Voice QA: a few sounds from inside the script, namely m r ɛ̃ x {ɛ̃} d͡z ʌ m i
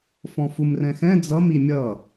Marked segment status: correct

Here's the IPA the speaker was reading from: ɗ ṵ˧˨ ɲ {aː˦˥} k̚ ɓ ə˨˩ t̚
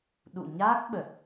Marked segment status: correct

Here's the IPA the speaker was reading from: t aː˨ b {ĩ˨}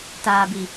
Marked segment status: incorrect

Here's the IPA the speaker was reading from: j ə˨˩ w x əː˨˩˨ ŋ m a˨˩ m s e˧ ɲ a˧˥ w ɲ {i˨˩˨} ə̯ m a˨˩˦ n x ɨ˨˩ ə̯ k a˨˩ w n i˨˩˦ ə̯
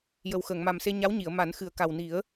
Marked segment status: correct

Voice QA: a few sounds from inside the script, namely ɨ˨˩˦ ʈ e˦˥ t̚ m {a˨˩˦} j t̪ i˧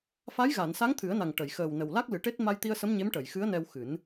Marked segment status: incorrect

